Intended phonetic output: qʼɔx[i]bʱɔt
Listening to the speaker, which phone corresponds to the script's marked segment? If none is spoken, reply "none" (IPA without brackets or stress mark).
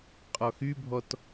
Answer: y